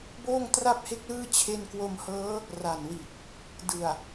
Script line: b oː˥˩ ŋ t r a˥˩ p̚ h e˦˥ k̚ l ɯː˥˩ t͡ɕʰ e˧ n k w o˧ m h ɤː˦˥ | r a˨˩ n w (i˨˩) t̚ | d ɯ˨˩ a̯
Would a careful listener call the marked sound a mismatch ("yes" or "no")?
no